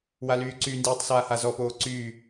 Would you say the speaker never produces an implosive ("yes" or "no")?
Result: yes